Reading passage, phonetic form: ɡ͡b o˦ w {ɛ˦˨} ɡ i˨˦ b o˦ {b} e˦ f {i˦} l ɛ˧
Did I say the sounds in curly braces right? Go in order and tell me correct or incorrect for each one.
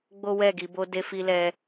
correct, incorrect: d, correct

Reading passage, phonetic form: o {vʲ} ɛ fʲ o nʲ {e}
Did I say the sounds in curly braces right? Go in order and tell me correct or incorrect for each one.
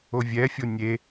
correct, correct

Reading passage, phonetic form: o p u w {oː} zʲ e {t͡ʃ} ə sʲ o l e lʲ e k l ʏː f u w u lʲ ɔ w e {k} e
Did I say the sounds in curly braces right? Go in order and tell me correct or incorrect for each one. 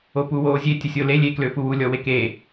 correct, incorrect: tʲ, correct

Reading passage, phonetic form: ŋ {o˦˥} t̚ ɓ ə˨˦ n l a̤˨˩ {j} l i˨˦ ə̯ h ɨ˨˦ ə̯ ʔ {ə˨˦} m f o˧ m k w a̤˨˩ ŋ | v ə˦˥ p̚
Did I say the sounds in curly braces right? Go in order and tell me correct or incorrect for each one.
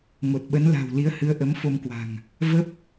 incorrect: o˨˩, incorrect: w, correct

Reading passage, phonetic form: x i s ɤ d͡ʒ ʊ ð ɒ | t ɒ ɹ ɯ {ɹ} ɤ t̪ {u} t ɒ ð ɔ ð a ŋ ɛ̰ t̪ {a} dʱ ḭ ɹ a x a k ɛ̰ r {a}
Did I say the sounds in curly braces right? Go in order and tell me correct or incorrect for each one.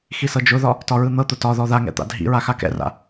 incorrect: n̪, incorrect: ʊ, incorrect: a̰, incorrect: a̰

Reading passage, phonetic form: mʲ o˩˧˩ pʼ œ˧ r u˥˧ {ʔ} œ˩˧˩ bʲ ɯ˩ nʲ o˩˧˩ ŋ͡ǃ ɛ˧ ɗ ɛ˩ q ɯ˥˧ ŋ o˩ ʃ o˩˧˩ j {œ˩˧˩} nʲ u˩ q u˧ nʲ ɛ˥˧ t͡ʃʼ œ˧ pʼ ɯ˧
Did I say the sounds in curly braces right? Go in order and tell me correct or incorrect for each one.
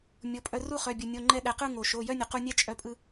incorrect: χ, incorrect: œ˥˧

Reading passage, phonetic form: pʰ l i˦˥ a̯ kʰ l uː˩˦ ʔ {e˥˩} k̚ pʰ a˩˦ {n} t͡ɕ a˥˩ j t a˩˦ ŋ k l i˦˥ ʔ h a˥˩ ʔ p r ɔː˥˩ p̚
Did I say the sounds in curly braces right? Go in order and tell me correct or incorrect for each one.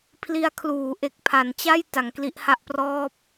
incorrect: e˨˩, correct

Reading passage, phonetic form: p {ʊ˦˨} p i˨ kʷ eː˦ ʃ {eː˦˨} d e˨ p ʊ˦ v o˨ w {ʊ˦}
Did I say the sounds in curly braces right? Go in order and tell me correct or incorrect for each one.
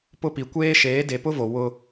correct, incorrect: eː˨˦, correct

